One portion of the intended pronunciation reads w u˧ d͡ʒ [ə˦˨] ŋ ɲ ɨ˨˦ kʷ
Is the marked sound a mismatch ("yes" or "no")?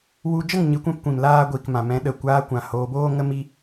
no